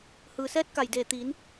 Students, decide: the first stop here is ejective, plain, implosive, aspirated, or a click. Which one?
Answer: plain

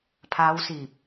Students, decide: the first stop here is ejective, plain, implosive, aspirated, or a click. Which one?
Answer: aspirated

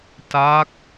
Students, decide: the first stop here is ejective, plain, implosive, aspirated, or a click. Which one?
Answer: plain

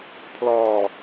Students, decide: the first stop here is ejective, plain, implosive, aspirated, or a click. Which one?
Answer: aspirated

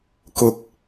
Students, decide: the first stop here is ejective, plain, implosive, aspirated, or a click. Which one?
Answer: plain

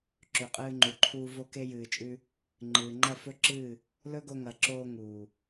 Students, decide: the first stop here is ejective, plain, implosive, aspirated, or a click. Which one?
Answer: click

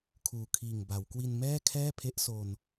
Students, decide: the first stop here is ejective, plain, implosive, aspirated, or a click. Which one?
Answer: aspirated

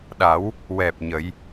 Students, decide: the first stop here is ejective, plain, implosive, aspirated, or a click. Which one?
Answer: implosive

